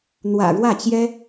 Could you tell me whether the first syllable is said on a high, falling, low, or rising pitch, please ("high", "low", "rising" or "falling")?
low